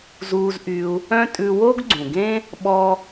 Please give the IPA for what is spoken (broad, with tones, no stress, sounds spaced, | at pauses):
z uː˧ z ʔ y˧ u̯ | œ̃˥ tʼ ʉ˧ w o˥ ɡ ɡ͡ǀ ũ˩ ɡ ẽ˥ | ɓ ɔ˥